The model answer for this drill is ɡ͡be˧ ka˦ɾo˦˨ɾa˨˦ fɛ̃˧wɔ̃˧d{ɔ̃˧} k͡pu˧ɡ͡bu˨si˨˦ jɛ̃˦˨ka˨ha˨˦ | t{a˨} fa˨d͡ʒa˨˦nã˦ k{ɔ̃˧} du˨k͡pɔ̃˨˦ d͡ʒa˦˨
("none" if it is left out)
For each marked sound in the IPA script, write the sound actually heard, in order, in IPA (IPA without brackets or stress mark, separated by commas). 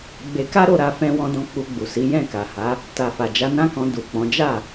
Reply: ɔ̃˧, a˨, ɔ̃˧